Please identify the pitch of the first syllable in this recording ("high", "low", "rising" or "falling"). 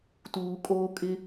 low